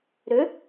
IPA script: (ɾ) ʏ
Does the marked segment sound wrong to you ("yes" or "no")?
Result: no